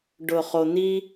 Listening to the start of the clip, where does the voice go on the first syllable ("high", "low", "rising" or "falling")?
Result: low